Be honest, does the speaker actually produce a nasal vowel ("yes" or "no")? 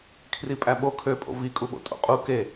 no